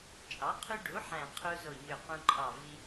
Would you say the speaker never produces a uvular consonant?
no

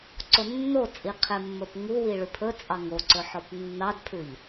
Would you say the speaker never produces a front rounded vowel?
yes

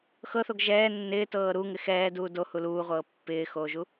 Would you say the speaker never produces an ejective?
yes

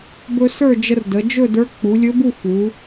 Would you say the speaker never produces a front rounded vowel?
yes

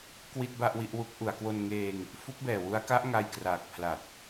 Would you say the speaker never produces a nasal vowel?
yes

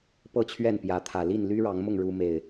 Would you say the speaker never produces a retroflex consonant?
no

